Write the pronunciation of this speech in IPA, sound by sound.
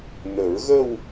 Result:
n ə˨˩˦ ɹ ɣ ə˥˧ w

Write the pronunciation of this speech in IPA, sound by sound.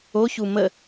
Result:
o ç u m ə

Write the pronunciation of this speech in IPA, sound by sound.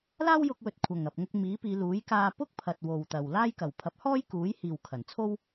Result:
l aː˥ w j ʊ˧ k̚ w ɵ˨ t̚ kʷʰ ɐ˨˩ ŋ ɐ˨ p̚ ŋ ʊ˧ k̚ m iː˨˥ p iː˨˧ l uː˨˥ j k aː˧ p ʊ˥ k̚ pʰ ɐ˨ t̚ w o˨ w t̪ ɐ˨ w l aː˥ j k ɐ˨˩ w pʰ ɐ˨˥ p̚ h ɔː˥ j k uː˨˥ j h iː˨ w kʰ ɐ˨˩ n t͡sʰ o˥ w

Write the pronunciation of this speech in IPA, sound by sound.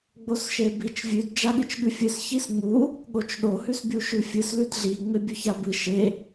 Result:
ɡ͡b o s ʃ e b i t͡ʃ vʲ ʉ d d͡ʒ a ɠ ɨ t͡ʃ ɠ ʉ fʲ ɨ s ç i s ŋ͡m u | ɠ o t͡ʃ ɗ o h ʉ s bʲ u ʃ ʉ fʲ ɨ s l ʉ d ɮ i ŋ͡m e bʲ ɵ ç a b ɨ ʃ e

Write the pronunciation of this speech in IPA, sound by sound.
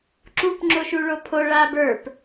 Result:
ǁ u p ŋ͡ǁ o ʃ u ɭ o pʰ o ɭ a b ə˞ p

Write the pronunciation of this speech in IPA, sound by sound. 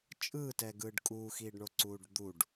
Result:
t͡ʃʼ ɯː t ɛ ɡ ɯː ɖ kʼ uː x iː ɖ ɳ o ǀ uː ɖ d̪ u ɖ

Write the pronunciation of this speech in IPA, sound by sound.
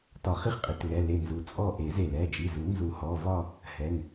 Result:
t ɒ˨˩˦ χ i˥˨ χ qʼ i˩˧˩ t l ɛ˩˧˩ l e˧˩ n z u˩˧˩ t͡sʼ ɔ˥˨ ʔ e˨˩˦ z e˧˩ l ɛ˩˧˩ d͡ʒ i˩˧˩ z u˨˩˦ n z u˨˩˦ h ɔ˩˧˩ v ɒ˥˨ | h ɛ˩˧˩ ŋ

